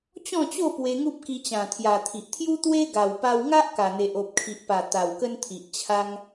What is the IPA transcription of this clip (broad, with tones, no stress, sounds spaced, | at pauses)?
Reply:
t͡ɕ ɔ̃˥˧ t͡ɕ o˥˧ p w e˧ ŋ u˦ p̚ k i˧ t͡ɕ ã˨˩ t̪ʰ j a˨˩ t̪ʰ i˨ ʔ t̪ʰ j u˦ t̪ w e˦ ɡ a˨˩ w p a˧ w ŋ a˦ ʔ k a˨˩ n̪ e˨ ʔ o˨ p̚ kʰ i˨ ʔ p a˨˩ t̪ a˨˩ w k ə˦ n t̪ʰ i˨ ʔ t͡ɕʰ a˧ ŋ